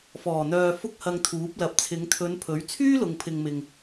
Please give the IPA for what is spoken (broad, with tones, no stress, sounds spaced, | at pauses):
f ɔː˨˩ n̪ œː˨ f ʊ˥ k̚ h ɐ˧ ŋ t̪ʰ uː˨˥ p̚ l ɐ˨ p̚ t͡sʰ ɪ˨˧ ŋ t̪ʰ ɵ˨˧ n pʰ ɵ˨˥ ɥ t͡sʰ yː˥ l ʊ˨ ŋ pʰ ɪ˨ ŋ m ɪ˨ ŋ